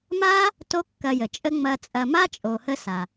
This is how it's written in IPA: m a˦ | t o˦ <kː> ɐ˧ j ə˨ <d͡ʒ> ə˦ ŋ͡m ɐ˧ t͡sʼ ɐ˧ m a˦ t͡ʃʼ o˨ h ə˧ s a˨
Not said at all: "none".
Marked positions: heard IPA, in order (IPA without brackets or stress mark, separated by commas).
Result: kː, t͡ʃʼ